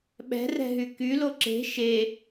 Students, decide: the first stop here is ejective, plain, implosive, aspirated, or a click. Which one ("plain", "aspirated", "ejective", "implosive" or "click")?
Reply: implosive